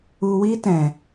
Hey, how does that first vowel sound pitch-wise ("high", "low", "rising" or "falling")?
low